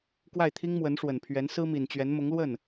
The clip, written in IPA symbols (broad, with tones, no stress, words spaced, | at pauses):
kwa˥˩ɪ̯t̪ʰi˥ŋ mwə˧˥nʂwə˨˩npʰɥɛ˧˥n sɹ̩˥mi˨˩nt͡ɕɥɛ˧˥n mʊ˧˥ŋlwə˥˩n